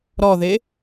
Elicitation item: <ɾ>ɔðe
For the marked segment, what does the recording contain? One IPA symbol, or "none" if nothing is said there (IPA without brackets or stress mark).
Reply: ɾ